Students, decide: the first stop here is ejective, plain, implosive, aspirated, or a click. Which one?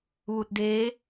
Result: plain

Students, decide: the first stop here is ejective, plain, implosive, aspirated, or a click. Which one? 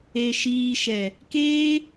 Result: plain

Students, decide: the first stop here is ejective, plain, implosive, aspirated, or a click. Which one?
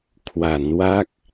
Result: aspirated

